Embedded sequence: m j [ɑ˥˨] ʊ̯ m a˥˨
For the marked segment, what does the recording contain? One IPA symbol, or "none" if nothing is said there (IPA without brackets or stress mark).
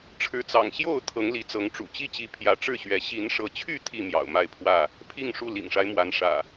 ɑ̰˨˩